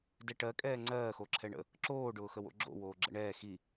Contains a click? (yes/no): yes